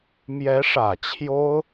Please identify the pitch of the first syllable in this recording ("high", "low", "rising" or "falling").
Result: rising